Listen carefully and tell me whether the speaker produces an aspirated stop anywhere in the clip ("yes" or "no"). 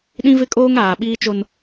no